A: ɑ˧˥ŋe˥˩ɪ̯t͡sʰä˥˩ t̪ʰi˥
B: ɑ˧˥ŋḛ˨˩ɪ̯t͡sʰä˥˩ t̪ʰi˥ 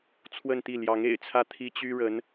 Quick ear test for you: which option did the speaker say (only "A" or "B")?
B